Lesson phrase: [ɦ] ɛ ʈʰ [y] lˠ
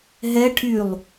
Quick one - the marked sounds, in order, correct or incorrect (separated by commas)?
correct, correct